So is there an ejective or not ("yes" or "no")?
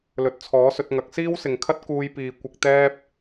no